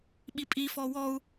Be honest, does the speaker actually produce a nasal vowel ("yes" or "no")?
no